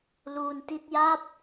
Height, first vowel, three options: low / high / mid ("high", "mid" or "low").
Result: high